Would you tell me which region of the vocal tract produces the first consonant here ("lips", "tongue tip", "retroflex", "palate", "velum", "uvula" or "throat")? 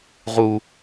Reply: uvula